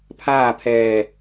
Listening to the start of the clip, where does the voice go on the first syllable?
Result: falling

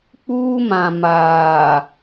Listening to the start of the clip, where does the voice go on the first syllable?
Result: high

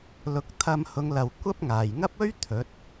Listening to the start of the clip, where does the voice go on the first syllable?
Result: rising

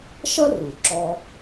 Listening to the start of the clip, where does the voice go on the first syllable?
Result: high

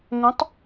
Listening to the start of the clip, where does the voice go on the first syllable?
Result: rising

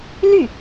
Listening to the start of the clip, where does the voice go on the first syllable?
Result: falling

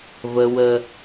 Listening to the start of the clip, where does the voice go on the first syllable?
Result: high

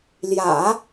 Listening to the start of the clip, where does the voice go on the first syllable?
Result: low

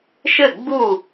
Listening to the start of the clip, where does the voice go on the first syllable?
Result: falling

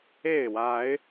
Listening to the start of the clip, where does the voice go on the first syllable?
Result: falling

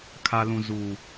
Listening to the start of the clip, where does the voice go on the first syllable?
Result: low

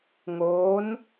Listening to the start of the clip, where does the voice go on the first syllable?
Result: rising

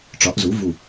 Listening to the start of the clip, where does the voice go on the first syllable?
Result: rising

